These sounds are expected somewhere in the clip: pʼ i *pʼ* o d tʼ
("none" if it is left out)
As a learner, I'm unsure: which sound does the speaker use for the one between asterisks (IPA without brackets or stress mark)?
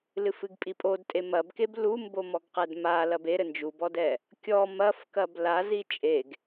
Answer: pʼ